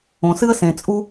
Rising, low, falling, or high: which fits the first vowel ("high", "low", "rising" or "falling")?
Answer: low